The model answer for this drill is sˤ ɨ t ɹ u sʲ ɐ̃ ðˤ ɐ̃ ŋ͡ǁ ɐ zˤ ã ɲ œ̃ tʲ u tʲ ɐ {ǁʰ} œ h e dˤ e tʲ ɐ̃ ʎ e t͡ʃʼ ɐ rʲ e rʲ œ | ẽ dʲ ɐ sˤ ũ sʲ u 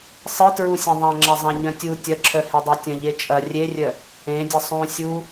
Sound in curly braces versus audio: correct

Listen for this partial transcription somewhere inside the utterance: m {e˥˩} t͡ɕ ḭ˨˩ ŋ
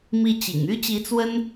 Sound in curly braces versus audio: incorrect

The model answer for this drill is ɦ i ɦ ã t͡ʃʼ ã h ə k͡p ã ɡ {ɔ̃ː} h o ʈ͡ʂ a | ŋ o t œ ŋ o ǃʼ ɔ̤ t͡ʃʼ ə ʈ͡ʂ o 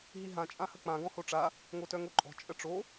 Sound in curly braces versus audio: incorrect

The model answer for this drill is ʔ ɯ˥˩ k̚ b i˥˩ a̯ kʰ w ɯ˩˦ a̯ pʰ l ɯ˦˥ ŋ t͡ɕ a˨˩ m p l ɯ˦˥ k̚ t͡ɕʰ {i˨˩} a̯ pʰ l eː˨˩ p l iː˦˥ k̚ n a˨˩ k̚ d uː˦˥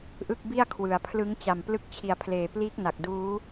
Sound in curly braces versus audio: correct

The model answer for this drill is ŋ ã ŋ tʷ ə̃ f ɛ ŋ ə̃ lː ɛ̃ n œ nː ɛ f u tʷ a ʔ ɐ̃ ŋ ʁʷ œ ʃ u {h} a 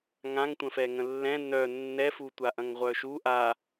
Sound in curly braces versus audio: incorrect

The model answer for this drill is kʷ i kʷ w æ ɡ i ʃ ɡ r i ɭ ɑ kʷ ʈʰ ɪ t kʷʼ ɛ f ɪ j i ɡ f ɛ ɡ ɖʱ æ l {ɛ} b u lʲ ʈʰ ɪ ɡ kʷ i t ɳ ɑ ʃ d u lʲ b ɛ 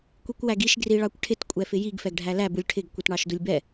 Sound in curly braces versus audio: incorrect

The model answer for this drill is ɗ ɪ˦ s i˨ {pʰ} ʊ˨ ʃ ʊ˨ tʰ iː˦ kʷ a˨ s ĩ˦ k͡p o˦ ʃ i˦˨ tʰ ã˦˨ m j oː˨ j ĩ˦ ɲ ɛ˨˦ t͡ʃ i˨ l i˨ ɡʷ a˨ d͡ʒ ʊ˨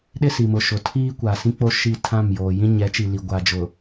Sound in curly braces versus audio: incorrect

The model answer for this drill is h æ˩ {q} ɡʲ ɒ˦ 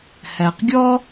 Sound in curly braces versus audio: correct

